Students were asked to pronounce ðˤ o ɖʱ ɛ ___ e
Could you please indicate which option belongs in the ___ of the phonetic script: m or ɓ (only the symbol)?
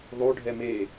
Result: m